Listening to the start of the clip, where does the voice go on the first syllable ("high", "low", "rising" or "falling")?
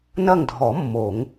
falling